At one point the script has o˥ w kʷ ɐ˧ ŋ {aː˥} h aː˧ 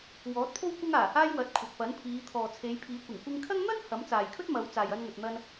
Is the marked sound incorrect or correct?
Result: incorrect